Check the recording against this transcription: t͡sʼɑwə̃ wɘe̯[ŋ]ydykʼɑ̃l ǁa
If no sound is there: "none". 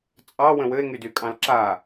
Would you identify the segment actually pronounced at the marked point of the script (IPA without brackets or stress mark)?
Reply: ŋ